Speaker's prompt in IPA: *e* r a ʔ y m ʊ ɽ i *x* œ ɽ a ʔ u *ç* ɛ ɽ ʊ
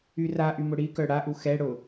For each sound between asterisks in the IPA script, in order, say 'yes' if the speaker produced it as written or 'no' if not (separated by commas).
no, no, no